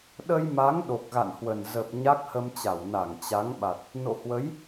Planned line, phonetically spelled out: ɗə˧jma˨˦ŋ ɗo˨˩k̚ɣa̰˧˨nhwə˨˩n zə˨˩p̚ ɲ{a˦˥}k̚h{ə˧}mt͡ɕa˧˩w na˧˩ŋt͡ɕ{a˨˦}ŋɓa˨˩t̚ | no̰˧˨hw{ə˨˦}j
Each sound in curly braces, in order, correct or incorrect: correct, correct, correct, correct

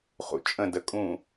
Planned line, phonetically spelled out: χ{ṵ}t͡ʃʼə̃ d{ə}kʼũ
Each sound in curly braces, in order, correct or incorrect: correct, correct

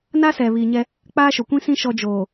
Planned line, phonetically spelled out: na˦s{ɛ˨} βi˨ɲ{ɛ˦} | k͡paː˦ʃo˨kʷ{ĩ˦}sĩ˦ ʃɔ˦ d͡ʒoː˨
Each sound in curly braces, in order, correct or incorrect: correct, correct, correct

